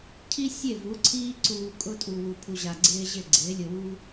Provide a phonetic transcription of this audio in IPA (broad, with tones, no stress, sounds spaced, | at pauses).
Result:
cʰ i˦ sʲ e˦˨ v u˨˦ ǀʰ iː˦ ǀ uː˧ kʼ ʊ˧ tʼ u˨ w u˨ pʰ u˨ ʑ a˨ ɡ͡ǀ ɪː˦ ʑ ɪ˦˨ ɡ͡ǀ ɪː˨˦ lʲ ʊ˧ w u˦